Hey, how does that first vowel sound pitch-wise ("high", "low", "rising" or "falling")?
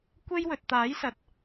high